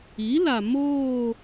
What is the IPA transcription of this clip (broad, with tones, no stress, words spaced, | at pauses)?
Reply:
i˨˦la˨ moː˦˨